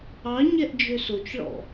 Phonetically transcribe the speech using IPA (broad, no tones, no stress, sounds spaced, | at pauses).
ɑ ɲ ɛ ʔ d͡ʒ ø s o t͡ʃ ɭ ɔ̰